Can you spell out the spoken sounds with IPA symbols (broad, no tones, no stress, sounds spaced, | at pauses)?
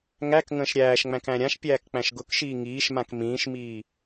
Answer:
ŋ æ k ŋ ə̃ː ʃ ɾʲ æː ʃ ŋ͡m æ̃ k æ̃ ɾʲ ã ʃ pʲ æː k k͡p æ̃ ʃ ɡ ʊ k ʃ iː ŋ iː ʃ m ã k m ĩː ʃ m iː